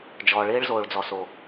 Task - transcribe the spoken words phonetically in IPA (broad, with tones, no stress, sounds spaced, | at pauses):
d͡ʒ ɔː˨ ɭ ɪː˦ ɭ z oː˨ ɭ d͡z ɔ˨ s o˨